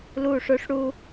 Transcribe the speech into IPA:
lu˧˩ʂɵ˧ʂɽu˧

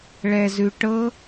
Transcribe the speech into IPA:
ɭɛzʉʈɤ

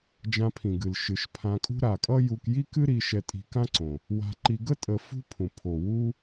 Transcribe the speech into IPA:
d͡ʒã˨pʰĩ˩ɡɨ˩l ʃɨ˩ʃpʰã˨kʼṳ˦ ɾa˩kʼʌ˦ju˨k ji˥ kɨ˦ɾi˨ʃɛ˨tʼi̤˨ kã˦ǀõ˩ | wa̤˨ǃi˨ ɡə˥tʼə˨ fṳ˦pʰũ˩ pʰo˩wu˦

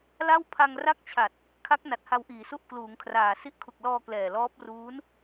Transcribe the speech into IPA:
la˥˩w pʰa˧ŋ ra˦˥k̚t͡ɕʰa˨˩t̚ | kʰa˦˥k̚ na˨˩t̚ha˧wʔiː˩˦su˦˥ʔ kluː˩˦ŋkʰraː˨˩ si˦˥ʔkʰu˨˩k̚lɔː˧ klɛː˨˩lɔː˦˥p̚ ruː˦˥n

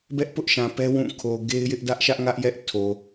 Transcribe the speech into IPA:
bɛ˦ʔpʊ˦ʔʃã˨ pɛ˦ wũ˦˨ kʰo˨ ɡe˦ɪ̯jɪ˦ʔ dä˦ʔʃä˦ʔŋä˦ʔjɛ˦ʔ tʰo˨

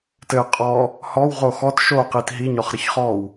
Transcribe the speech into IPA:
tɘ qʼɔ | hɔw ʁoxɔt ʃo qitɦi ɲɔχɾɘçχɔw

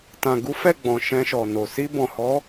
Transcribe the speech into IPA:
tã˨ɡu˨˦ fɛ˦˨ɡ͡bɔ̃˨ ʃɛ̃˧ʃɔ˨no˨ si˧bɔ̃˨hɔ˨˦

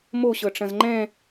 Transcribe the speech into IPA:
moɕɤʈ͡ʂɐ̃z ŋ͡ǃɛ̃

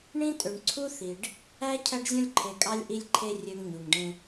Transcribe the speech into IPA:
ɳĩ˦tʼø˨ɳǀʰu˦ θi˨ɖ | æ˦ cʰæ˦ɖzʲõ˦lʲǃʰe˨kʼɑ˦lʲ ʔi˦lʲǃʰe˦ rʲø˦ŋɲu˨ŋɖẽ˦

